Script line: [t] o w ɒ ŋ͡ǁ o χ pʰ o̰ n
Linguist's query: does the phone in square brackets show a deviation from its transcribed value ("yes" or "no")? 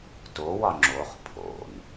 no